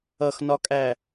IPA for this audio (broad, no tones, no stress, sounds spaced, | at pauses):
ʌ x n ɒ kʼ æ